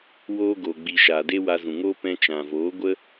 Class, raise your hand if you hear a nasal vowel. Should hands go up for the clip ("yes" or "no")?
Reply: yes